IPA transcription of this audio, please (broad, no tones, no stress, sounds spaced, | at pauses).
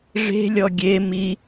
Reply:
ʐ e̤ lʲ ɔ ɡʲ e m i